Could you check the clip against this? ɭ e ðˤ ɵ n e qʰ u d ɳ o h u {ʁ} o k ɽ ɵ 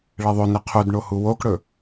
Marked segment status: incorrect: w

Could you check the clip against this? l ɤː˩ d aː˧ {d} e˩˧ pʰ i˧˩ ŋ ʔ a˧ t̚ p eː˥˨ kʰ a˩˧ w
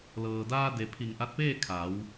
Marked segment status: correct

